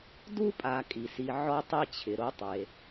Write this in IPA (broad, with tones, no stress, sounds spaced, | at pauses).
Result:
d u˦ pʼ a˨ kʼ i˩ s i˨ ʕ ɔ˥ tˤ i˥ t͡ɕʰ ɪ˩ ɾ o˥ tˤ e˩